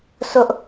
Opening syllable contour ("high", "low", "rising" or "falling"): high